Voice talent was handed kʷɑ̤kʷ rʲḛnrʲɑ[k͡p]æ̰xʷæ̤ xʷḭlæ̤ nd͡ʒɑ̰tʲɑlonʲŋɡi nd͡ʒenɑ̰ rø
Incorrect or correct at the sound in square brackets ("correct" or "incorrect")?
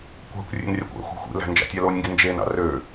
incorrect